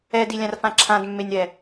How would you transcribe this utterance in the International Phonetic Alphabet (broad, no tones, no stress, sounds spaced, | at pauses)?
ɛ d i lʲ ã r f ã ǁʰ ã d mː e nʲ ɾ ɛ